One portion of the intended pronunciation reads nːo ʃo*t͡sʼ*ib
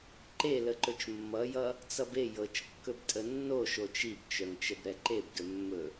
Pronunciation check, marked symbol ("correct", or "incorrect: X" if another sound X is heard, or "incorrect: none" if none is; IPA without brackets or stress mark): incorrect: t͡ʃ